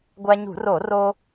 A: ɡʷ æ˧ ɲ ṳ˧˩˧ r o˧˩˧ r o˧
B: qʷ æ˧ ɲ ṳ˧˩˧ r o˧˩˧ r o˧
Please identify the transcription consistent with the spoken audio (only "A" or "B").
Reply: A